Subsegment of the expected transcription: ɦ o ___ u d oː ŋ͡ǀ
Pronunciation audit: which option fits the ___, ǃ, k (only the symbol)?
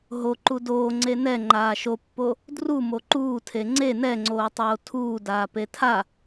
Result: ǃ